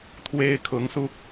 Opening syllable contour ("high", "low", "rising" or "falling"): high